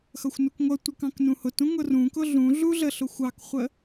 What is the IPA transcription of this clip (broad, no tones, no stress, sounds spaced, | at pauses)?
x ʌ xʷ n u k ŋʷ ʌ tʷ ə k ɑ̃ k n ũ h ʊ t ũ ŋ ʊ r ũ k ʊ ɮ ũ ɮ u ɮ ə ɬ ʊ xʷ ɑ k χʷ ə